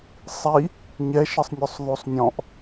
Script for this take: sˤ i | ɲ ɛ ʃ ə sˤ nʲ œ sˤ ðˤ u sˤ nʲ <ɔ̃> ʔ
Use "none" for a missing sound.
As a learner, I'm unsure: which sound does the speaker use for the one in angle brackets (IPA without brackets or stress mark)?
ɔ̃